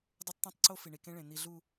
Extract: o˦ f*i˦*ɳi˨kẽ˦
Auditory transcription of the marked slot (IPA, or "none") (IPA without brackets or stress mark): i˨